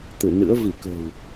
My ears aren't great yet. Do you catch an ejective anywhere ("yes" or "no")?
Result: no